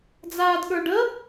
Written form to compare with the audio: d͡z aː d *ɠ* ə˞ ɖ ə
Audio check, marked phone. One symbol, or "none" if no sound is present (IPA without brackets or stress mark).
ɠ